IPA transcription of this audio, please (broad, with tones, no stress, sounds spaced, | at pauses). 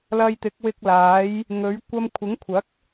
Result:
l ɐ˧ j t̪ ɪ˨˥ k̚ w ɪ˧ k̚ l aː˨˥ j | ŋ ɵ˨˥ ɥ kʷ ɐ˧ m kʷʰ ɪ˨˥ ŋ kʷʰ ɐ˨˥ k̚